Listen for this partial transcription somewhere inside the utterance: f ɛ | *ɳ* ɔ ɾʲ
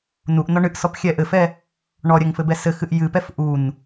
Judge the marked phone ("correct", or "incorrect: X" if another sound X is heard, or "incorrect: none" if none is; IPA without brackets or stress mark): correct